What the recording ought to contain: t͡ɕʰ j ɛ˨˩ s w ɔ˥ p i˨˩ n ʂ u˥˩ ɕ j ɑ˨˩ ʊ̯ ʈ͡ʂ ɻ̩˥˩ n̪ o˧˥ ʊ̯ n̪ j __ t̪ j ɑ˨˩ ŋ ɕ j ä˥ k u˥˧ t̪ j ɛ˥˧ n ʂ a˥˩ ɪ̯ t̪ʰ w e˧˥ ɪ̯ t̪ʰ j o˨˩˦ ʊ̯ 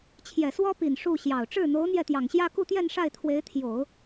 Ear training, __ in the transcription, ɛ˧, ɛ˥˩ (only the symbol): ɛ˥˩